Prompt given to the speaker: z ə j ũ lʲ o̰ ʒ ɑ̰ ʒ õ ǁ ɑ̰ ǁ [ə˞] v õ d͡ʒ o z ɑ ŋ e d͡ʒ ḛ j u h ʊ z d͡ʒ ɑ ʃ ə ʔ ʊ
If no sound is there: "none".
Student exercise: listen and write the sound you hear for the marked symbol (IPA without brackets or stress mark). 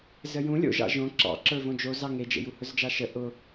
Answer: ə˞